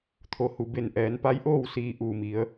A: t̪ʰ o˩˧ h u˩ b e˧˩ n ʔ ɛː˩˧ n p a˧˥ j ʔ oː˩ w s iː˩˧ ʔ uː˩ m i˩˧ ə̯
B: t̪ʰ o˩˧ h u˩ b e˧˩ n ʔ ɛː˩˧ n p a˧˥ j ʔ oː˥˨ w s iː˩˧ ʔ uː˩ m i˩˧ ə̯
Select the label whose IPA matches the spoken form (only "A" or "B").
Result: B